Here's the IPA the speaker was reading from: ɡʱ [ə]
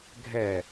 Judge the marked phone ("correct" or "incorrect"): incorrect